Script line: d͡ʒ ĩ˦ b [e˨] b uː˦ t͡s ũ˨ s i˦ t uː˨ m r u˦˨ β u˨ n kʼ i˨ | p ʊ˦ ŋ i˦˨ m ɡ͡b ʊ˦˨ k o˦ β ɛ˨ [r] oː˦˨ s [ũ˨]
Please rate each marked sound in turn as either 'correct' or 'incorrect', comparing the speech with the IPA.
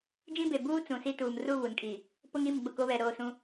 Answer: correct, incorrect: ɾ, incorrect: ũ˦

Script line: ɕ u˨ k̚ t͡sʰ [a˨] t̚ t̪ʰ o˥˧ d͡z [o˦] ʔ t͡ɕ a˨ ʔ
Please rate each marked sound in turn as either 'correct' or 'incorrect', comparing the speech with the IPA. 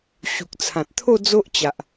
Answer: incorrect: ã˨, correct

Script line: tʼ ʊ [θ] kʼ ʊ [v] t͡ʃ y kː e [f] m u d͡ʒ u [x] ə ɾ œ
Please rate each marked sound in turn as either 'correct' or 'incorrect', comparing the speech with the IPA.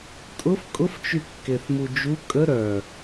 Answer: incorrect: f, incorrect: f, incorrect: θ, incorrect: kʼ

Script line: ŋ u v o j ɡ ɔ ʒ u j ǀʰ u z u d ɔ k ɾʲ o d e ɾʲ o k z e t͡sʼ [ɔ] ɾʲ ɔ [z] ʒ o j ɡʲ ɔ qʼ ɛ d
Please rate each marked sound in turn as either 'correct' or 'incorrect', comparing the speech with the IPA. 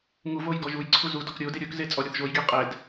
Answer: correct, incorrect: θ

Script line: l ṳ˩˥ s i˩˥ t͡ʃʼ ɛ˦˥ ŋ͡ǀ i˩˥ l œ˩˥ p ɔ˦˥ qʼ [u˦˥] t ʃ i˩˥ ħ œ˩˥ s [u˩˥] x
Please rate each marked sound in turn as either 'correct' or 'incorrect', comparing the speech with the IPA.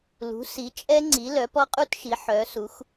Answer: correct, correct

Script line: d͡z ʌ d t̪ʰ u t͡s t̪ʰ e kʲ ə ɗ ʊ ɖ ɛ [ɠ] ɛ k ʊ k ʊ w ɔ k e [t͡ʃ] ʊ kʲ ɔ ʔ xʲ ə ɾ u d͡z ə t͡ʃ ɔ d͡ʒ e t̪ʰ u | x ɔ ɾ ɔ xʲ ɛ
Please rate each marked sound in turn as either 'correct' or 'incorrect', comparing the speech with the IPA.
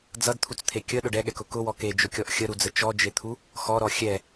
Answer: correct, incorrect: d͡ʒ

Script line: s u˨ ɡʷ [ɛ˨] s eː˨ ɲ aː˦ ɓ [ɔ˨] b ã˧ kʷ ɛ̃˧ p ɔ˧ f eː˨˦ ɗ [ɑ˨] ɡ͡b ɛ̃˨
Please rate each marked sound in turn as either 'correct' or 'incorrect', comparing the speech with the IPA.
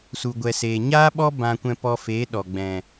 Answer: correct, incorrect: ɔ˦, incorrect: ɔ˨

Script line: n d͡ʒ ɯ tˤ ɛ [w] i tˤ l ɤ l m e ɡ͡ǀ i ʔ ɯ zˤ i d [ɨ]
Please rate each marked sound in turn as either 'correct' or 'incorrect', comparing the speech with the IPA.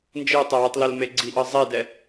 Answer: correct, incorrect: ɛ

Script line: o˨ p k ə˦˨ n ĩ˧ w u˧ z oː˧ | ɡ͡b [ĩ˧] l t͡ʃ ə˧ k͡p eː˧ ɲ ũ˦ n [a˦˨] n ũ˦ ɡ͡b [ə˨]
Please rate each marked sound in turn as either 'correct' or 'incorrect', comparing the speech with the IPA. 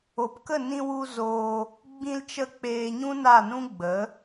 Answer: correct, correct, incorrect: ə˨˦

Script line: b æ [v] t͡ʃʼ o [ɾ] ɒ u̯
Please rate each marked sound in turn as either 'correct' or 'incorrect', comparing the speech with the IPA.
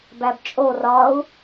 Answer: incorrect: b, incorrect: r

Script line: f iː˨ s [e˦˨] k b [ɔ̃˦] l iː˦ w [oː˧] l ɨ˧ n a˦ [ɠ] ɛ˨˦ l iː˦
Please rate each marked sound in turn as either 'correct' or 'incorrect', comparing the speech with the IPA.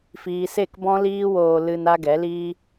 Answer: correct, correct, correct, incorrect: ɡ

